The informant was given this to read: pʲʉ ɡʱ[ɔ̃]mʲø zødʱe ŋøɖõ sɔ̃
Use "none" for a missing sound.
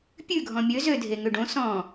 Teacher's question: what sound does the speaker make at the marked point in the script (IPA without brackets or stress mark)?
ɔ̃